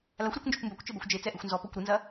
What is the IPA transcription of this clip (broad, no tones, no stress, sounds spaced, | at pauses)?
l a xʷ ɾ e kʷ n d͡ʒ ɔ kʷ m b ɐ kʷ t͡ʃ ɘ b ɛ xʷ d͡ʒ e t͡s ɛ ʔ ɨ xʷ n z ɔ p ɔ kʷ ɾ ɨ n z ɐ